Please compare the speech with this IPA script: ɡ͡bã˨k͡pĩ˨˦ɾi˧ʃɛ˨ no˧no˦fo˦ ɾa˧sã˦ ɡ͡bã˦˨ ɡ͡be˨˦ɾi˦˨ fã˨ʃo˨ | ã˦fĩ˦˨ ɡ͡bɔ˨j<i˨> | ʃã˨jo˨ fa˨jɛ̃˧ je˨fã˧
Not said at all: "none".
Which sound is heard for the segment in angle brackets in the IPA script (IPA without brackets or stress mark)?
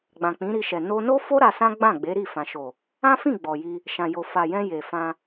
i˧